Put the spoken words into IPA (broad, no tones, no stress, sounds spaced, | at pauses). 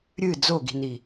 ɾʲ ɨ d͡z o ɡ i̤ n i